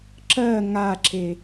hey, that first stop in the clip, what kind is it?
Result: click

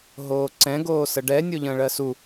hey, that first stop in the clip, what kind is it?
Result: click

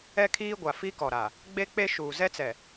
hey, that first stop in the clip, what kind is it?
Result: aspirated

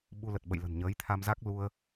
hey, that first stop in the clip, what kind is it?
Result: implosive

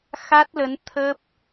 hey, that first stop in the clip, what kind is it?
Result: plain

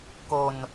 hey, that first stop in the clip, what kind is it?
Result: plain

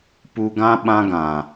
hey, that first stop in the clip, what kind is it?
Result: plain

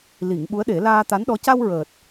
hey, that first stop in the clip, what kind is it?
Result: implosive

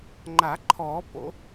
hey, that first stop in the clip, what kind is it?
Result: click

